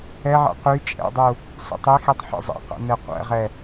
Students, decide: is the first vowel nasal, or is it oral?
oral